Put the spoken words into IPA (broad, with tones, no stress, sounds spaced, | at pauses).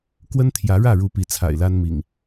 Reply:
k w ə˦ n t̪ʰ j ä˨˦ ɻ ä˥˨ ɻ u˨˦ p i˨˦ t͡sʰ a̰˨˩ ɪ̯ l a˦ n m ḭ˨˩ ŋ